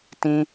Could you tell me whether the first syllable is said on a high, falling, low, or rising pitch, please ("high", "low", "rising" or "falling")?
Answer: high